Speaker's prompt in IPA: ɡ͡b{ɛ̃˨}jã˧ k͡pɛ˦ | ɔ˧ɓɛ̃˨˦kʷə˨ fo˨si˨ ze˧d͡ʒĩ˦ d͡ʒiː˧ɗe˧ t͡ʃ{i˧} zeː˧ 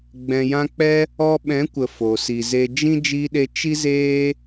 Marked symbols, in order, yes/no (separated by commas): yes, no